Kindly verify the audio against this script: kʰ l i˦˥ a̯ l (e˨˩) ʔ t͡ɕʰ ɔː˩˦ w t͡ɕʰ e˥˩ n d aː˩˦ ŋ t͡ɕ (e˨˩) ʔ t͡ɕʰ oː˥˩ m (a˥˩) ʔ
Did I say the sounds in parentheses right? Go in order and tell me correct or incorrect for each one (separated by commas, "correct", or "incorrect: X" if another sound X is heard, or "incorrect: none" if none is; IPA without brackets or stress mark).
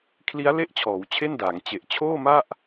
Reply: incorrect: e˥˩, correct, correct